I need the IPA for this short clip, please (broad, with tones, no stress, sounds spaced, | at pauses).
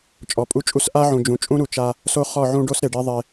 t͡ʃʼ ɔ˨˦ pʼ u˦ t͡ʃʼ u˦ s ʔ a˦ ʕ ũ˨ d͡ʒ ũ˨ t͡ʃʼ ũ˦ ɾ u˨ t͡ʃ a˦ | s o˦ χ ɔ˦˨ ʕ ũ˦ ɖ o˦ s ɾ e˨ ɖ e˦ ðˤ e˦